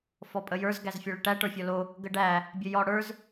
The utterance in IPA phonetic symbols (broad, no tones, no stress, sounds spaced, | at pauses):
f ɔ pʼ ə j ə˞ z ɡ æ z fʲ ɔ ɭ ə ʈ æ ʈ ə˞ fʲ ɔ l o | ɡ ə ɖ æ | bʲ ə j ɔ ɽ ə˞ z